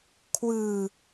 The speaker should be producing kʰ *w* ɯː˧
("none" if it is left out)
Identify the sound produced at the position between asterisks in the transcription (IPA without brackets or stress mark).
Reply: w